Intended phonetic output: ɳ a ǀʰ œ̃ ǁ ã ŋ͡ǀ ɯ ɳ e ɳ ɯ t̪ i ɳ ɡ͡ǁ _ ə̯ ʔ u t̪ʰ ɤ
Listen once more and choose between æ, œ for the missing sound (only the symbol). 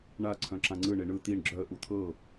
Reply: œ